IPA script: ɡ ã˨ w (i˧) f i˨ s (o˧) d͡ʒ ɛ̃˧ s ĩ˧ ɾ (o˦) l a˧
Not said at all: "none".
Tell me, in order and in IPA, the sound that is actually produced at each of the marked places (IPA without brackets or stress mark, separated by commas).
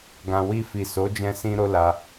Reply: i˧, o˨˦, o˦